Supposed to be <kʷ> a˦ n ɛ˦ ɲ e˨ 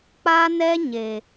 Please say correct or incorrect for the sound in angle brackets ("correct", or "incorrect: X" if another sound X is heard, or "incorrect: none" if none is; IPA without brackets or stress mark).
incorrect: k͡p